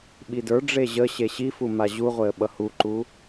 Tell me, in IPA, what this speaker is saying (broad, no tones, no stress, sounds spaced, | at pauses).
ɓ i d ə˞ ɖ͡ʐ e ʑ ə ɕ e ɕ i f u m a ʑ u ʁʷ e ə̯ ɓ ʌ h u ǃ u